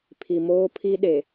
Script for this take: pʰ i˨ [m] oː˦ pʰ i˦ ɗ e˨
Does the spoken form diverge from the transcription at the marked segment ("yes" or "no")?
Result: no